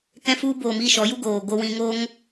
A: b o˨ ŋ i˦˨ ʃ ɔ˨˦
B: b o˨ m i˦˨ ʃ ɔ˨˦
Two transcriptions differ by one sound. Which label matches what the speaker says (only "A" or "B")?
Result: B